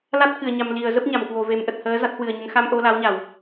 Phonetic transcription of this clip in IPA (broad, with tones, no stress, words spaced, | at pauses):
la˦˥t̚kɨ˧˩ə̯ɲa˨˩m li˧˩ə̯zə˦˥p̚ ɲa˧˩mkwo˧˩ve˨˩mʔə˨˩t̚ həː˨˦za˦˥t̚hwɨ˨˩ə̯ɲə˨˦n xa˧mʔo˧la˨˦wɲa˧˩˨w